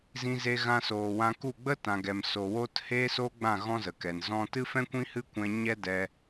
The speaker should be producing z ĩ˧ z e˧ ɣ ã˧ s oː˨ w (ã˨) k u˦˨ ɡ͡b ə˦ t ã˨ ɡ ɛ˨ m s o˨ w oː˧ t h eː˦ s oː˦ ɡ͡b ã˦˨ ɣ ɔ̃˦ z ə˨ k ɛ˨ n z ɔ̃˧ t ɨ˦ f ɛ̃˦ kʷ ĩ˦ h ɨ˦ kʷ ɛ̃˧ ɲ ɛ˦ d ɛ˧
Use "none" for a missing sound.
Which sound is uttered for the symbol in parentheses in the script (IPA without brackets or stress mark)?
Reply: ã˧